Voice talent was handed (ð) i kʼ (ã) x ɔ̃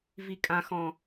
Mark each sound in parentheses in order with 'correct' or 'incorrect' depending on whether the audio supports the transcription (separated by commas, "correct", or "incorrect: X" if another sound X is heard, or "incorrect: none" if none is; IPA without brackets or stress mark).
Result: incorrect: v, correct